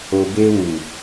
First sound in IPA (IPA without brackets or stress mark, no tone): o